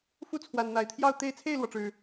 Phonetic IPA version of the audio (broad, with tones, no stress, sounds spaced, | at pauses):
f u˥˨ t͡sʰ w a˨˩ n n̪ a˨˦ ɪ̯ t̪ʰ j ɑ˥˨ ʊ̯ t̪ e˦ ɪ̯ t͡sʰ e˥˨ ɪ̯ l w ɔ˩ ʈ͡ʂ ɻ̩˨˩